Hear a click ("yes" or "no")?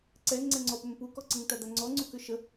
yes